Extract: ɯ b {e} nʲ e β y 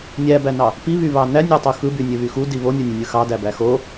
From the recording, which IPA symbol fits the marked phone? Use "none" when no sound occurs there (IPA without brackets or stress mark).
y